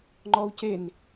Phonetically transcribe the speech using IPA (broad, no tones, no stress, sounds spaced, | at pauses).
ŋ͡ǃ ɔ u̯ c e n